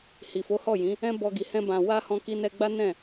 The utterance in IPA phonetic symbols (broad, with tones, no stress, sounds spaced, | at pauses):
h i˨ f o˨˦ h ɔ˦˨ j ĩ˨˦ | ɛ̃˦ b ɔ˧ ɡ i˨ h ɛ̃˧ b ã˨ w a˧ h ɔ̃˧ k i˧ n ɛ˧ ɡ͡b a˦ n ɛ̃˦˨